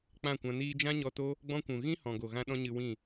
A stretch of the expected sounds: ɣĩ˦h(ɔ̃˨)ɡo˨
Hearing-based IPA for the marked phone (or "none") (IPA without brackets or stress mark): ɔ̃˨